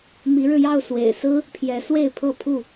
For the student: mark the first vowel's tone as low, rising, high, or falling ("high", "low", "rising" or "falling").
rising